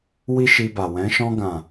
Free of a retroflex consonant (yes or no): yes